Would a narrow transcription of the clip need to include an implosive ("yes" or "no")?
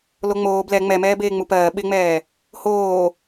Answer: yes